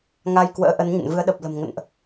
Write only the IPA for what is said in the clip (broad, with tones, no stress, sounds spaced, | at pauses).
ŋ a˧ j k w ə̰ː˧˥ ʔ ə˨˦ n ɲ ə̰˧˨ n v ɨ˨˦ ə̯ ɗ ə˨˩ p̚ l ə̤˨˩ m ŋ ə̰˧˨ n ʔ